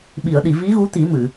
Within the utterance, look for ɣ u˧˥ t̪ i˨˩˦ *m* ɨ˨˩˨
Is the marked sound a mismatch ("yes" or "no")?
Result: no